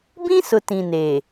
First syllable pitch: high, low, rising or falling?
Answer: high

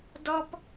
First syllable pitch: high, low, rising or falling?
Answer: high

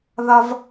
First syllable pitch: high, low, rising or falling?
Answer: high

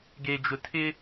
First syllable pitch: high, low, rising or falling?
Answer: low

